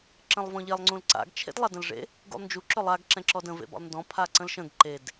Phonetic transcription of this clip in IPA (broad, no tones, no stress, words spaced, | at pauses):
ǁə̃lˠvɔ̃ʎelˠ ŋ͡ǀũlǀa̰ɡ t͡ʃʰḛdlˠadə̃lʐḛ | ɡṵlˠnd͡ʒu ǁɵlˠaɡ ǁɛ̃ǁɔdə̃ vḛbɔ̰lˠndɔ̃ pʰaǀə̃lʃə̃ɡ ǃed